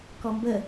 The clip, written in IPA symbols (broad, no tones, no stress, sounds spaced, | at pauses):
k ɔ m b ə